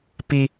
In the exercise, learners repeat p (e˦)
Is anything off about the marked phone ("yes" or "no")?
yes